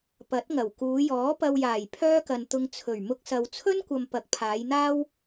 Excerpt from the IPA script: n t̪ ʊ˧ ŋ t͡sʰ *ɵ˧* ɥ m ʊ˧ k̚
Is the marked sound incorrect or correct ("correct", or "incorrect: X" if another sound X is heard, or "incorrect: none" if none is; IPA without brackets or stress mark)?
incorrect: ɵ˨˩